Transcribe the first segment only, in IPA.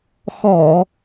x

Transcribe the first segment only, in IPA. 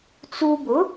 t͡s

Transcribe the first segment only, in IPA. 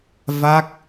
v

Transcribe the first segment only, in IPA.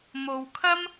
m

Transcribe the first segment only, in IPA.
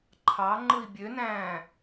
ǃʰ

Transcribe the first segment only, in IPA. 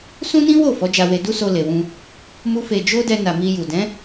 s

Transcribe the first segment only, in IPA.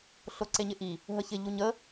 ɬ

